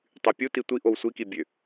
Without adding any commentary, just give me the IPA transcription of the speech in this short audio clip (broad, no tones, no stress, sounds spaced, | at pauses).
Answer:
tˤ y pʲ u t i tʷ i ʔ o w sʷ i k i bʲ ø